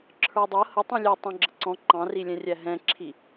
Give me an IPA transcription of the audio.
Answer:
ǁʰ ə˞ dˤ ʌ h ə tˤ ũ lʲ ɛ tˤ ɑ̃ ɡ͡ǁ ə ǀ ɔ̃ ǃ ɑ̃ r i lʲ ɛ̃ rʲ æ ɦ ɛ̃ ǁʰ i

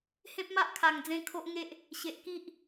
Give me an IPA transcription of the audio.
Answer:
h ẽ˦ p̚ m a˦ ʔ kʰ a˨˩ ŋ d͡z ẽ˧ kʰ o˦ ʔ ŋ e˦ ʔ | ɕ e˨ ʔ k i˦ ʔ

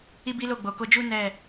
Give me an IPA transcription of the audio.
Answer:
i˦ b i˦ l o˦˨ ɡ͡b o˨ k o˧ d͡ʒ u˦ n ɛ˦˨

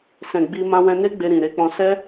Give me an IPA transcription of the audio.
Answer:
s ɛ̃˨ ɡ͡b i˧ m ã˧ w ɛ̃˧ n e˦ ɡ͡b e˧ ɾ ĩ˨ ɾ e˨˦ k͡p ɔ̃˧ s ɛ˦

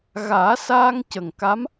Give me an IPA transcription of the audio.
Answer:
ɣ aː˨˩˦ s aː˧ ŋ c ə˨˩ ŋ k a˧˥ m

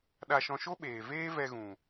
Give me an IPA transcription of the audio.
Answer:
ɗ a˧ ʃ ɔ̃˧ ʃ o˦ ɓ eː˨ v eː˦ v ɛ˧ ɣ ũ˨

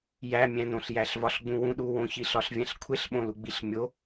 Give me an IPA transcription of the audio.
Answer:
j æ mʲ æ̃ n õ ɬ j æ ɬ v ɒ ɬ ɡ͡b ũ w ũ ɗ u w õ ç i ɬ ɒ ɬ vʲ æ̃ ɬ kʷʰ e ɬ ɓ õ l u ɡ͡b i ɬ mʲ o

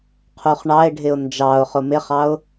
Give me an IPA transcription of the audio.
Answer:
qʰ u χ ɳ ɑ ɪ̯ ɖʱ ɪ ʊ̯ n d͡ʒ ɑ ʊ̯ χ ʊ m ɪ χ ɑ ʊ̯

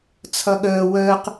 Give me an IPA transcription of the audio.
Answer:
t͡sʰ ʌ ɠ əː w əː q

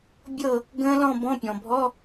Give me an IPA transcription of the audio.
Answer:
bʲ ɤ˥˨ | ɡ ə̃ː˦˥ l ɔ̃˥˨ b ɔ̃˧˥˧ pʲ ɔ̃˩ bʱ ɔ˧˥˧

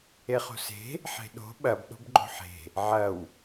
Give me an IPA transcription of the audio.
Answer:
e χ o̤ s e̤ | ħ e̤ ɗ o̤ ɓ ɐ b ɗ o̤ b ɡ͡ǃ o̤ ħ e̤ | ʕ ɐ w

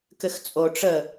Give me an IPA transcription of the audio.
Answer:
k ɘ x t͡sʼ o ʈ͡ʂ ə

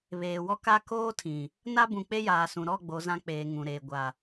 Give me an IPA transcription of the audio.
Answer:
β eː˨ w ɔ˦ k a˦ k oː˦ tʰ ĩ˨ | n a˦ b ũ˨ k͡p e˦ j aː˨ s ũ˨ ɾ ɔ˦˨ ɡ͡b o˨˦ z ã˦ k͡p eː˨ ŋ ũ˨ ɾ eː˨ ɡʷ a˨

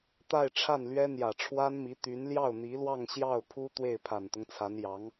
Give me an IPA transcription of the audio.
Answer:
t̪ a˥˧ ɪ̯ ʈ͡ʂʰ a˥˩ n l ɥ ɛ˥ n̪ j ä˨˩ ʈ͡ʂʰ w a˥ n m i˧˥ t̪ y˧˥ n l j ɑ˥˩ ʊ̯ n̪ i˧˥ l w ɑ˥˧ ŋ ɕ j ɑ˥˩ ʊ̯ pʰ u˥ t̪ w e˥˩ ɪ̯ pʰ a˨˩ n t̪ ʊ˦ ŋ t͡sʰ a˧˥ n j ɑ˧˥ ŋ

